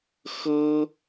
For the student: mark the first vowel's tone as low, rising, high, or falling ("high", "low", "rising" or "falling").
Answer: high